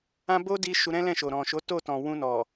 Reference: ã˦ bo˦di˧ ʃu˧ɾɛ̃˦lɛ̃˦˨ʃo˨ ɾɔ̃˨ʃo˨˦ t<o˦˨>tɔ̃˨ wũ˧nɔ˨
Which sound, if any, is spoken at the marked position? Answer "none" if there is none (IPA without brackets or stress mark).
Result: o˦˨